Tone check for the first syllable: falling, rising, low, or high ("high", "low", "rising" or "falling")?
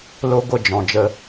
high